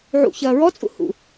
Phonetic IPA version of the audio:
ʕṵ çɐːɹɔt͡sʼṵ hṵ

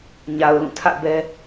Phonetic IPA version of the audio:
ɲa˨ʊ̯lũ˦˨tʰä̰˦˨bɛ˦

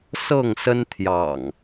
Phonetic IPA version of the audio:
sɤ˥˨ŋsə˦nt̪ʰjɑ̰˨˩ŋ

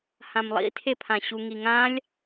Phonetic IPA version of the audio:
hãmlˠḭtʰepʰã ɕuŋiŋãlʲ

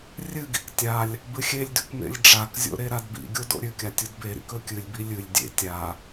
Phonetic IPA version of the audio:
rʲɨɡḭk tʲalʲ | bɨxʲelʲdʉk mḛlʲɖ͡ʐakzʲo̰ ɾeɾadbḭɡʲo do̰ɾʲʉkʲa tʲudbeɾḭk ɵkʲɨlʲbi lʲɨlʲ dʲḛ tʲa

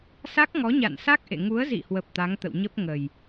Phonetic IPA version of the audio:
sa˦˥k̚ŋɔ˨˦ɲa̰˧˨nsa˦˥k̚ ʔḛ˧˨ ŋu˨˦ə̯zḭ˧˨hwə˨˩p̚ t̪a˨˦ŋt̪ə̰˧˨wɲə˦˥p̚ ŋə˨˩j

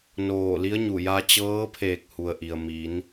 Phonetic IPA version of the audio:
noː˧˩li˧˥ə̯ɲu˧˩ ja˧t͡ɕɤː˧˥pʰeː˧˩k̚ hu˩ə̯ʔi˩ə̯mi˩˧n

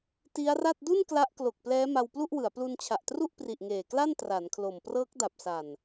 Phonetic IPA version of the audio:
ti˦˥a̯ra˥˩t̚ du˥˩n kla˦˥ʔklo˨˩k̚plɛː˦˥ ma˧wplu˥˩ʔwɯ˩˦a̯ plu˧nt͡ɕʰa˨˩ʔtru˥˩ʔpri˨˩ʔ ŋeː˨˩kla˥˩n tra˩˦nkʰlo˨˩m prɤː˦˥k̚da˨˩p̚sa˨˩n

